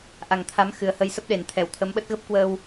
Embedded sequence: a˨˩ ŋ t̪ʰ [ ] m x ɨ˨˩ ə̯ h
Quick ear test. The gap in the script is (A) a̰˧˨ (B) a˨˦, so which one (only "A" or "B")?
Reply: B